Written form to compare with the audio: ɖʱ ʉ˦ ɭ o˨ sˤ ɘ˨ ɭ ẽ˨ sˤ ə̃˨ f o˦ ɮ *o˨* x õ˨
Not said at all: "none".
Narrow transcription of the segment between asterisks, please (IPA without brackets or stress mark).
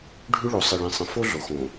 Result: o˨